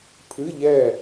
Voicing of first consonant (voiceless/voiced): voiceless